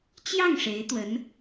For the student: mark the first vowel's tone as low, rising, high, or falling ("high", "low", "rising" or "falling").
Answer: falling